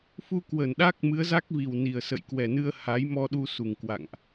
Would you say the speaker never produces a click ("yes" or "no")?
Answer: yes